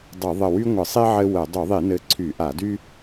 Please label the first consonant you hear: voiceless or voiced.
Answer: voiced